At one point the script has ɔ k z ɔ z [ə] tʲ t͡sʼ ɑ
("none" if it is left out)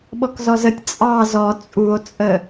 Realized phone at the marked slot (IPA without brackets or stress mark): ə